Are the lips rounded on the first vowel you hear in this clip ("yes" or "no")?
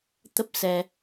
no